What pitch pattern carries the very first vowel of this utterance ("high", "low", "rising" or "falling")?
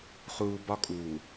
low